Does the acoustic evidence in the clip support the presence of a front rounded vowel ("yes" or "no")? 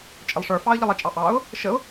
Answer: no